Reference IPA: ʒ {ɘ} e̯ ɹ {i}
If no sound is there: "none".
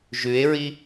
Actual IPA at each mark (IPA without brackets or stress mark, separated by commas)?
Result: ʉ, i